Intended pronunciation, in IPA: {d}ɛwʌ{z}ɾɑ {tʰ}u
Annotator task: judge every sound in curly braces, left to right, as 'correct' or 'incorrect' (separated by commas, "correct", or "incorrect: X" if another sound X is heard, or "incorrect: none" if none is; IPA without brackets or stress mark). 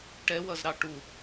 incorrect: ʈ, correct, incorrect: ʈ